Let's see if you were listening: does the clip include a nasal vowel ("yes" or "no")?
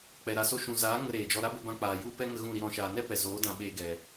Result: yes